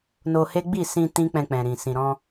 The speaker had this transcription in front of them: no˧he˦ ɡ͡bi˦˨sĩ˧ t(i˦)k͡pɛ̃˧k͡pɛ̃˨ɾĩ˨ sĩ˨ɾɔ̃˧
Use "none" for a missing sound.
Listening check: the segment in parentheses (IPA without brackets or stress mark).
ĩ˦